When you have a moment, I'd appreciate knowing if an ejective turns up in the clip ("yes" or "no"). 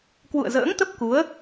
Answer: no